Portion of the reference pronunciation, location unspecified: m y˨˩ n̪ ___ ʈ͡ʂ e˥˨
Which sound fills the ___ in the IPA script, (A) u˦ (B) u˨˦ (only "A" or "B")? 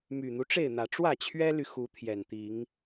A